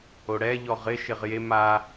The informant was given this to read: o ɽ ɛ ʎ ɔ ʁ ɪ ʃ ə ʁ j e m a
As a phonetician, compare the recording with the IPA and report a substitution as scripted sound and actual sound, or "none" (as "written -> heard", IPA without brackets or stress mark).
ə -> ɪ